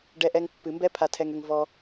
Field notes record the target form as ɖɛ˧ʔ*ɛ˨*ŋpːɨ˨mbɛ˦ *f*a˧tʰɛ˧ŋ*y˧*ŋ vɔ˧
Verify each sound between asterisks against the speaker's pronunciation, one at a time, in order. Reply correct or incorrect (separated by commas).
incorrect, incorrect, incorrect